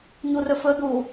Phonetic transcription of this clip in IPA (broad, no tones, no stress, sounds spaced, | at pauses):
ɲ u r ɵ f ɵ d̪ u